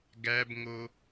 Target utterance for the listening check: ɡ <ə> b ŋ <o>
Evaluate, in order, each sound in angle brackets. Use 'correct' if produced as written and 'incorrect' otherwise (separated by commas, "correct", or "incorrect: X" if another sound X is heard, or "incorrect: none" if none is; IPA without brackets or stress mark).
incorrect: æ, correct